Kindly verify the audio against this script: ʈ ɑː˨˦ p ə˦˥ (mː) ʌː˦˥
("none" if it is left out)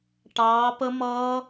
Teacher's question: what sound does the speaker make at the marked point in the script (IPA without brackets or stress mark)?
m